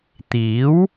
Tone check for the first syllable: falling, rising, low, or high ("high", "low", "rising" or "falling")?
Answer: rising